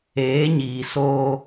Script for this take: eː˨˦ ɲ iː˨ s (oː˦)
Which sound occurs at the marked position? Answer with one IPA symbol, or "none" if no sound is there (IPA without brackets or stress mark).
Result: oː˦